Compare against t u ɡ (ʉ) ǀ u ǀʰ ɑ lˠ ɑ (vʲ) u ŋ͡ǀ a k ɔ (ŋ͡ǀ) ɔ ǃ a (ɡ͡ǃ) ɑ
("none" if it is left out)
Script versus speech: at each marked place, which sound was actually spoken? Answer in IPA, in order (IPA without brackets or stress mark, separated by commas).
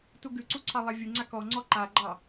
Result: ʉ, vʲ, ŋ͡ǀ, ɡ͡ǃ